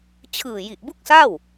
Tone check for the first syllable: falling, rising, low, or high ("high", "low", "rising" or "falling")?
low